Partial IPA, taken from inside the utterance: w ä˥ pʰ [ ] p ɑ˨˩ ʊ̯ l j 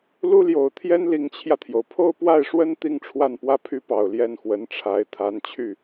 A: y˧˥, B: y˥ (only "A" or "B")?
B